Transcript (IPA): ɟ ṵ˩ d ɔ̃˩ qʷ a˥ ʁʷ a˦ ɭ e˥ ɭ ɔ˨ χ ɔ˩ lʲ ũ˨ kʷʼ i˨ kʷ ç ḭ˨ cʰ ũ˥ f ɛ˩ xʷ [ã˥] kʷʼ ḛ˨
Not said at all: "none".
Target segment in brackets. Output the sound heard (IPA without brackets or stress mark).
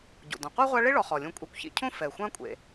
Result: ã˦